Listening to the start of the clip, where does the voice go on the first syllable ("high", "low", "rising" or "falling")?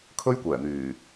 high